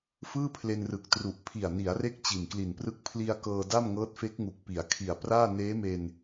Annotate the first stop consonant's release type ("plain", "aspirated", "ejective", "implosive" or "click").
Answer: aspirated